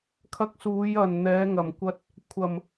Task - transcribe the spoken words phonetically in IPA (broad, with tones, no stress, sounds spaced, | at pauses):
kʰ ɐ˧ k̚ s uː˨˧ j ɐ˨˩ n n̪ ɛː˨˧ ŋ ɐ˨˩ m kʷ ɐ˧ t̚ | kʷʰ ɐ˨˩ m